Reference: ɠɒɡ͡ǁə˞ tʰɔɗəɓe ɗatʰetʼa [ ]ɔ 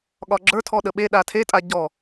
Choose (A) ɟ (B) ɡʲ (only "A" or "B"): A